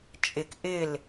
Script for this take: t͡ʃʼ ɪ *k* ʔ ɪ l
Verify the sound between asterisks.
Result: correct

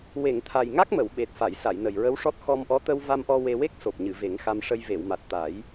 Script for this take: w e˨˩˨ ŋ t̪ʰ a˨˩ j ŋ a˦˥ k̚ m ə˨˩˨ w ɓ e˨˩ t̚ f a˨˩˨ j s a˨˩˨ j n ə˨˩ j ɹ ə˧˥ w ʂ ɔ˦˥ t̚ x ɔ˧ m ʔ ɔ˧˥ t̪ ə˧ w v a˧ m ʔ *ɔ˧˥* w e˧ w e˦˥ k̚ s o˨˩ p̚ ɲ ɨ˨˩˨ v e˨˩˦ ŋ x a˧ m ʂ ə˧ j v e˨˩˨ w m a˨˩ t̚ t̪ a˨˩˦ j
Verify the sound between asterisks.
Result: incorrect: ɔ˧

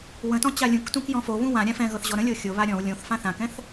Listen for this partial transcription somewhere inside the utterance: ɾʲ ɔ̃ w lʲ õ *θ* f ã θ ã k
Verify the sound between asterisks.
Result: correct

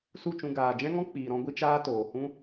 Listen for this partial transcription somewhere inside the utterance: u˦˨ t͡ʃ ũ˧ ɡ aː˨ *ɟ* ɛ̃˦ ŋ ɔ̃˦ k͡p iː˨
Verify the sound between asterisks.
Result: incorrect: d͡ʒ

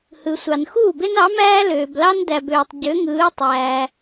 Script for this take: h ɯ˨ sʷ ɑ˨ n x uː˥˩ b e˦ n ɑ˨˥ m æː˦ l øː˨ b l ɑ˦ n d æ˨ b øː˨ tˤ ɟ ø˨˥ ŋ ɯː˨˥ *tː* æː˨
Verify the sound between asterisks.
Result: incorrect: tˤ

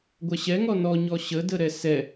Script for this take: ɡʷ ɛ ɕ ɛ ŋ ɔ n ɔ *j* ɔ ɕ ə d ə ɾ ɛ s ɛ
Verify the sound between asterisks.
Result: incorrect: ɲ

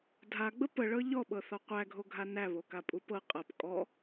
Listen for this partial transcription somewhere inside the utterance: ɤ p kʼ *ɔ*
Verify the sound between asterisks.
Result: correct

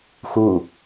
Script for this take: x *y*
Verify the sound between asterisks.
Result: incorrect: u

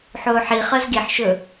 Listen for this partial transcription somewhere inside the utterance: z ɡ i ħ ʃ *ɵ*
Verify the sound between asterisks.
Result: correct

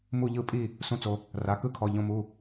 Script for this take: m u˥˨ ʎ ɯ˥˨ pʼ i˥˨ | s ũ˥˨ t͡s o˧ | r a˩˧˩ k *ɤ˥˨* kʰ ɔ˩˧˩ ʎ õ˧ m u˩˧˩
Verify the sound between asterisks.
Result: incorrect: ɯ˥˨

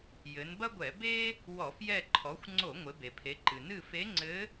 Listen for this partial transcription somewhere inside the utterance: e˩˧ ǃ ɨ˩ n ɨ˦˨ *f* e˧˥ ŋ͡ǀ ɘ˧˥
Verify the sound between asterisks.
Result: correct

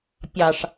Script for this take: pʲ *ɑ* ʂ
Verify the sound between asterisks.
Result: correct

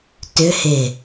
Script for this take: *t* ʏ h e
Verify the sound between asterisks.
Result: correct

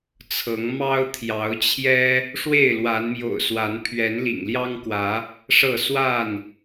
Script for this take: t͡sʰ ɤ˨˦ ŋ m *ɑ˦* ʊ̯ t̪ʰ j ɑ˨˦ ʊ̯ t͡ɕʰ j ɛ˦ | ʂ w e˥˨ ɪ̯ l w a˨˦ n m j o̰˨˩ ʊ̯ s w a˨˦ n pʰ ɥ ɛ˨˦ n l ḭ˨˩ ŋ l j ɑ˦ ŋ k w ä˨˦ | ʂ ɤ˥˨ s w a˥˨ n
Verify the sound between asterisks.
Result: correct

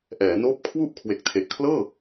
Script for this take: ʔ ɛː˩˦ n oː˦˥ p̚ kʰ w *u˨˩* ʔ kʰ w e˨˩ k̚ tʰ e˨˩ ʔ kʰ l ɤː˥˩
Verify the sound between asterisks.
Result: incorrect: u˥˩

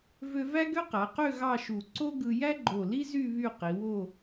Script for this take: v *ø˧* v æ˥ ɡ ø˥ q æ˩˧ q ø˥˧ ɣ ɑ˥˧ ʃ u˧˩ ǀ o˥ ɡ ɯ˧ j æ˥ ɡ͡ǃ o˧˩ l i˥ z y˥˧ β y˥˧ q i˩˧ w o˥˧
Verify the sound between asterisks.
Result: correct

